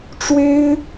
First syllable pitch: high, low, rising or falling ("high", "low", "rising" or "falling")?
high